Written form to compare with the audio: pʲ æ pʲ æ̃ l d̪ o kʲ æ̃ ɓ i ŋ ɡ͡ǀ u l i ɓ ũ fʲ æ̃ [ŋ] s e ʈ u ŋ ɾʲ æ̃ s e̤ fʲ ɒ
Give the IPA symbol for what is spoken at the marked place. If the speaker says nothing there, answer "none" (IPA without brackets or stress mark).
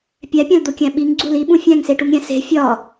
ŋ